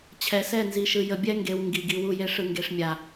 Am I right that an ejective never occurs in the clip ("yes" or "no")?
yes